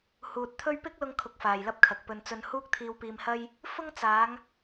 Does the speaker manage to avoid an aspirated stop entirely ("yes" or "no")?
no